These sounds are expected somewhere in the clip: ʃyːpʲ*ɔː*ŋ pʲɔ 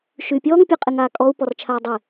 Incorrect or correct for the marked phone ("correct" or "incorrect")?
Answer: correct